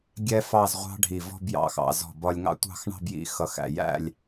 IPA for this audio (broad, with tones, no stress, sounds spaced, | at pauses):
ɡʲ ɛ˥ f ɑ˥˧ z ʁʷ ɑ̤˥ ɖʱ i˧˩ v ɔ̤˥˧ b j ɑ̰˧˩ x ɑ̰˩˧ z ɔ̤˧˩ b ɒ˧ lʲ ŋ ɑ̰˥ tʷ ɑ̤˥˧ x ɳ ɑ̤˥˧ b j ḭ˧ x ʌ˧˩ x æ̰˧˩ j æ̰˥˧ lʲ